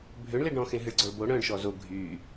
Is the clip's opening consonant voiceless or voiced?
voiced